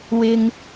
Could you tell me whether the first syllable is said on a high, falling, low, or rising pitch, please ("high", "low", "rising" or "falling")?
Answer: low